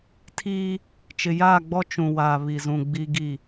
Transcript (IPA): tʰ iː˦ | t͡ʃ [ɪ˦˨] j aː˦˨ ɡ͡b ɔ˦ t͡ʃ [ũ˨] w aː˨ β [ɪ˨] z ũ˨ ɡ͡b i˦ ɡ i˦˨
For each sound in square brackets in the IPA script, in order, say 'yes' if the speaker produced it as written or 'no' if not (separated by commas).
no, yes, no